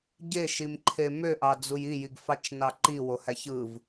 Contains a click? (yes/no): yes